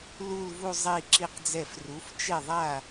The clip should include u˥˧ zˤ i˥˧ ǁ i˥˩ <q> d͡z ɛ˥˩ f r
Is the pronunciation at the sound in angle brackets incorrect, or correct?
correct